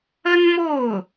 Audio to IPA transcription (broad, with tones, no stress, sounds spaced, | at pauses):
ə˥ n m o˥˩ ʊ̯